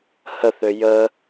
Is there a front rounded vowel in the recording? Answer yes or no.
yes